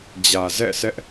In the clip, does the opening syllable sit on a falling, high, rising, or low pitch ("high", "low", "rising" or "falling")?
low